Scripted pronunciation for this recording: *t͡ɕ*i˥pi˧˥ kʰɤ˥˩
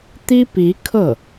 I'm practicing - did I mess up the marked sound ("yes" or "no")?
yes